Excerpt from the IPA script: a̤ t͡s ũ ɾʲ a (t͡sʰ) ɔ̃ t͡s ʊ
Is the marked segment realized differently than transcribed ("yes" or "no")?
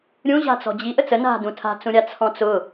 no